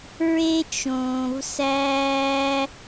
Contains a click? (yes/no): no